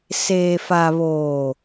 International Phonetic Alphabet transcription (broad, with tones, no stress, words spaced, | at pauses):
seː˨ fa˨ βoː˨